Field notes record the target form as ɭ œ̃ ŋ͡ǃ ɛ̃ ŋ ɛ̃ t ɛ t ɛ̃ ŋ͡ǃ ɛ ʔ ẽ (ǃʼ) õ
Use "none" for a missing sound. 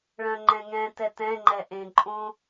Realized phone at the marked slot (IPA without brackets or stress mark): ǃʼ